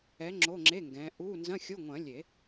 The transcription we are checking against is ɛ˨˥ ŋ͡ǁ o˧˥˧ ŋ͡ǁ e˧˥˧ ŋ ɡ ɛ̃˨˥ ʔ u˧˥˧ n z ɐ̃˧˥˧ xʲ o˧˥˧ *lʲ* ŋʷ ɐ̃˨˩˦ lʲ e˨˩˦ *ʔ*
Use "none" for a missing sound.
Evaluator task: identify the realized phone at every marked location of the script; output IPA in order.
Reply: none, none

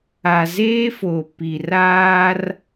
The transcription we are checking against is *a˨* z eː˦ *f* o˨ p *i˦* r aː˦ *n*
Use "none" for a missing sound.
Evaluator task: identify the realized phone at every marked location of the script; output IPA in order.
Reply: a˨, f, i˨, r

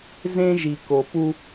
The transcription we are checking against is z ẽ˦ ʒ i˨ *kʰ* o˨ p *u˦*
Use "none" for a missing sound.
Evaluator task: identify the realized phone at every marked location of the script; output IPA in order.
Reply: k, u˦

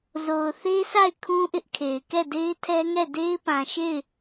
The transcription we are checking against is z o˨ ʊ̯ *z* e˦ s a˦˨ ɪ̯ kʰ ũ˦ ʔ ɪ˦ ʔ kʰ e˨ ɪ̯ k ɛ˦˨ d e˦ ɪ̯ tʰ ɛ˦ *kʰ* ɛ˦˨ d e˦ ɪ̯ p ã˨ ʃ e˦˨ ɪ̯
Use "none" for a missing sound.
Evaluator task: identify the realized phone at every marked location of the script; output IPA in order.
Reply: θ, ŋ

